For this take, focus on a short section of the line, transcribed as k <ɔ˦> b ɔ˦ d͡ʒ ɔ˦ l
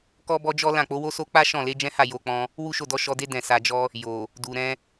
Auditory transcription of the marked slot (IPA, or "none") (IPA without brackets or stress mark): ɔ˦